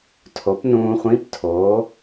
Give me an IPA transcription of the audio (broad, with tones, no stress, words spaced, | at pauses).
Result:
tʰo˩˥pnũː˧χʷĩ˧˥˧p tʰoː˩˥